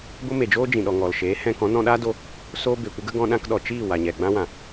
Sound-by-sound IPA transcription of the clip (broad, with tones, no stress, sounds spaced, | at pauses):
ɡʷ ə˦ m e˨ d͡ʒ oː˦ d͡ʒ ĩ˨ ɗ ɔ˨ ŋ ɔ˨ l ʃ eː˨˦ h ɛ̃˧ k ɔ̃˨˦ n ɔ̃˧ ɗ aː˦ d o˧ | s oː˦ b e˨ kʷ ə˦ ɡ ə˦ ɡ ɔ̃˧ ɗ ã˧ k ɗ ɔ˨ t͡ʃ iː˦˨ w a˨ ɲ ɛ˨ ɡ͡b ã˦ w ã˨